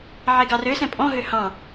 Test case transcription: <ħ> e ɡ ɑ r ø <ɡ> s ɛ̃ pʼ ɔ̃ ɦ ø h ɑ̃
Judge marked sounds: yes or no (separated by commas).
no, no